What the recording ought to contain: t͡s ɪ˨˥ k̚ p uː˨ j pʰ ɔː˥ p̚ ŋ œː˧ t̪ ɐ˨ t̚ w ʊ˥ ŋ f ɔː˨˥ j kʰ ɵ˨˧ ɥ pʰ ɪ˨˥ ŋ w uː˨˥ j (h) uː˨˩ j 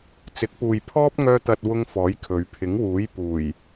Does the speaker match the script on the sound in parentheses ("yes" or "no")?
no